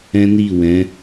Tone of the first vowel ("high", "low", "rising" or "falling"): high